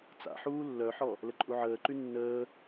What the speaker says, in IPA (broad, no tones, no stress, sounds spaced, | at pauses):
t͡s a̰ ħ uː lː œ ħ ɔ | l ə ǃʼ u ʕ əː ǃ y nː əː